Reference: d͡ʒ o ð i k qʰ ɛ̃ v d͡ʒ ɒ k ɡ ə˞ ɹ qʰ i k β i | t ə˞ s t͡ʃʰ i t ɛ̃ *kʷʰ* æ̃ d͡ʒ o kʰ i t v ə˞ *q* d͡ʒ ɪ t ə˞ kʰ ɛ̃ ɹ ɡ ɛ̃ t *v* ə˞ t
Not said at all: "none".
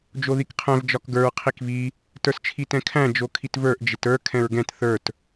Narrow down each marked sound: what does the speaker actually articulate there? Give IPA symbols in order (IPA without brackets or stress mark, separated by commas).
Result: kʰ, ʔ, θ